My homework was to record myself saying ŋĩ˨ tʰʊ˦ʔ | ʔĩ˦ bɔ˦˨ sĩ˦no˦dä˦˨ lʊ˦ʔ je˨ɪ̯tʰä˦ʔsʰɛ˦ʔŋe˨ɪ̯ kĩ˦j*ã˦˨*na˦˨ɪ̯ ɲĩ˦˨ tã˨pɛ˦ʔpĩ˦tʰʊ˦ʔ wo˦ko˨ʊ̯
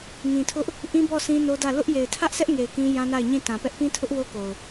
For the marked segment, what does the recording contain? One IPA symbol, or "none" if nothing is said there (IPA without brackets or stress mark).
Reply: ã˦